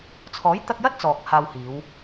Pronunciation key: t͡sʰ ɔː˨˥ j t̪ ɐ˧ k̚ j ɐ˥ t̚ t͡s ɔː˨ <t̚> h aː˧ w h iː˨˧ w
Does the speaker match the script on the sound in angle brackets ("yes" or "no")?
no